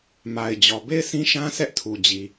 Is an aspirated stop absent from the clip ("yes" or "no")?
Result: no